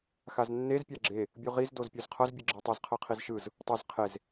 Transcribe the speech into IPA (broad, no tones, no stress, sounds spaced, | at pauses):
x a z nː e z pʲ a ɡ͡ǁ e | bʲ u ʁ i z d o z pʲ o z qʰ ʌ z bʲ ɯ ɡ͡ǁ ɛ tˤ ʌ z qʰ ʌ qʰ i z ʃ ɯ z | tˤ o z qʰ e z